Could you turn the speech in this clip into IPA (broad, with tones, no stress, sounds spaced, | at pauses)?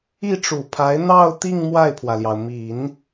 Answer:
i˥˩ ʈ͡ʂ u˨˩ pʰ a˧˥ ɪ̯ n̪ ɑ˥˧ ʊ̯ t̪ i˥˧ ŋ m w a˥˩ ɪ̯ pʰ w ä˩ l j ɑ˩ ʊ̯ m i˨˩˦ n